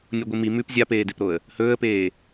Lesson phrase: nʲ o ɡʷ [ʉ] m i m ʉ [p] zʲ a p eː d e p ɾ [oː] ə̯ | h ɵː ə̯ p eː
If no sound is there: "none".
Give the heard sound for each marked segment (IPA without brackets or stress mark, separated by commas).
ɨ, p, o